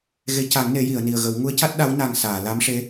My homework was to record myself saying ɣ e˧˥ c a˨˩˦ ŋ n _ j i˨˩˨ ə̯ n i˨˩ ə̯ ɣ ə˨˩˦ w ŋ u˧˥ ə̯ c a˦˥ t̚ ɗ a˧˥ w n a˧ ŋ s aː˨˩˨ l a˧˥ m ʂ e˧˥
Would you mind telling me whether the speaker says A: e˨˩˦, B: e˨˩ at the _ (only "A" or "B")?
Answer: A